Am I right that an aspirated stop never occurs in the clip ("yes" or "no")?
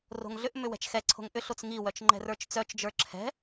no